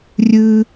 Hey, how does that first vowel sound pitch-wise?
high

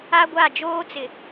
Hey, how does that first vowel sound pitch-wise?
high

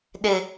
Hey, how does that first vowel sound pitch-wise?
high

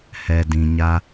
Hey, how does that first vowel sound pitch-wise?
low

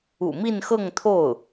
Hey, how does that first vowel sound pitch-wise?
low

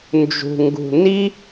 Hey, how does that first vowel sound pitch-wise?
low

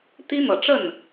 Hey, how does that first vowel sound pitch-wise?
high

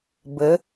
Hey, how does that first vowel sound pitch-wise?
rising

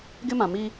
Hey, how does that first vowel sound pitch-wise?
high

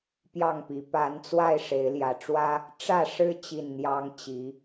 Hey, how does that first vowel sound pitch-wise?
falling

